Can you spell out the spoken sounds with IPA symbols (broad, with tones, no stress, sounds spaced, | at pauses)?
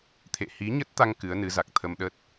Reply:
t̪ʰ ḛ˧˨ h i˨˦ ɲ ə˦˥ t̚ t̪ a˧ ŋ k ɨ˨˦ ə̯ n ɨ˨˦ z a˨˩ k̚ t̪ʰ ə˧ m ɗ ə˦˥ t̚